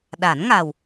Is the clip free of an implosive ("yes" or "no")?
no